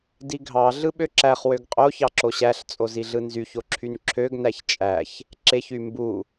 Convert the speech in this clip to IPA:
d i ɡʱ ɑ ɮ ɯ ɓ ø ǁ æ χ w ø ɡ qʼ o ç ɑ ǁ o ɕ æ ɬ t͡sʼ o z i ɮ ɯ n z y ç o ǁʰ y n ǁʰ ø ɡ n æ ç t͡ʃʼ æ ç | ǁ e ç y m b u

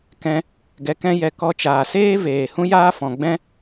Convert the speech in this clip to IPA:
k ɛ̃˧ | ɡ ɛ˧ k ɛ̃˦ j ɛ˧ k ɔ˧ t͡ʃ aː˨ s eː˦ v eː˨ h ũ˦ j aː˦ f ɔ̃˨ ɡ͡b ɛ̃˦

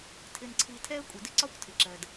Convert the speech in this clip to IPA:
tʰ ɪ˧ n ǀʰ i˧ tʰ ɛ˦ ə̯ kʷʼ ə˨ d ɪ˦ ǀ ɒ˦ kʷ tʰ ɪ˨ ǁ ɜ˨ d

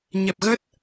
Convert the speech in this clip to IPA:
ɲ ɛ˨˩ p̚ ɣ ə˦˥ t̚

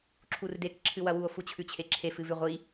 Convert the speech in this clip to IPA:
ǁʰ u r d e k ǁʰ ɨ w ɐ w u o̯ f u t͡ɕʰ ʉ t͡ɕʰ e ǁʰ e f ɨ v ʉ ʁʷ i

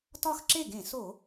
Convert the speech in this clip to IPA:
t ɒ˥˧ x ǁ e˥˩ ɡ ẽ˧˩˧ s o˧˩˧

